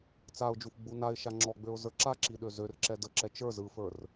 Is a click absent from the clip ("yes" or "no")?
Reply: no